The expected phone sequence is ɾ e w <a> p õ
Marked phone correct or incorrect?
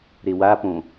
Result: correct